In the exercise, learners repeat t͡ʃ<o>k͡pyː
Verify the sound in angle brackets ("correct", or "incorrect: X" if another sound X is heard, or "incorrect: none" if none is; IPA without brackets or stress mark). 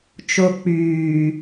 correct